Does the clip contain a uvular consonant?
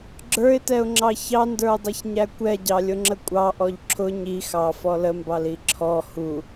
no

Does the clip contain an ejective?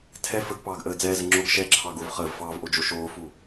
no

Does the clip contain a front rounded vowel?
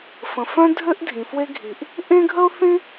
yes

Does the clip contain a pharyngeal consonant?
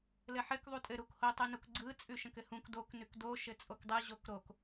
yes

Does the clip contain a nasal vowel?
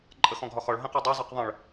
yes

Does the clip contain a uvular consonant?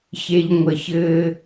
no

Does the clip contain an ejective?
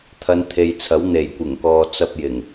no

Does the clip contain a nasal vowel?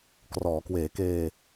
no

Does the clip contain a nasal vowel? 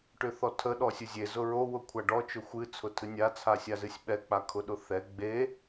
no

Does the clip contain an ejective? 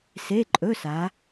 yes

